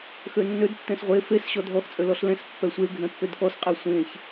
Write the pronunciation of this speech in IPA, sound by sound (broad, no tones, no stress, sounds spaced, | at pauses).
x ø nː ø d tː ɛ̃ s ʁʷ e f e s ɕ ɔ dʱ ɔ x t͡sʼ ø l ɔ ɬ l ɛ̃ s pː ɛ sʷ e ɡʱ ɛ̃ pː ø d k ɔ s qʼ ɛ sʷ ẽ ç